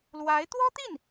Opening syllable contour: rising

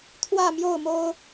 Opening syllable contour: falling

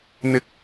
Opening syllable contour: rising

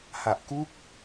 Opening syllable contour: low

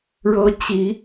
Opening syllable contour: high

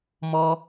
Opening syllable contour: low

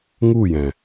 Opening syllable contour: falling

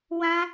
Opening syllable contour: high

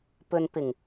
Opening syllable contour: low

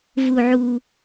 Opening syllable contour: low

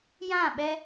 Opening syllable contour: falling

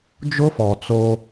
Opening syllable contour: high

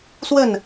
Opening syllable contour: falling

